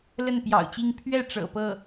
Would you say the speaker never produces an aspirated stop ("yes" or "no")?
no